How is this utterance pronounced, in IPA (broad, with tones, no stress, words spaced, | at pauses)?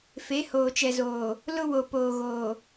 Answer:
fe˨˦hoː˨t͡ʃɛ˨zoː˨ | lʊ˦ wo˨poː˨ɣoː˨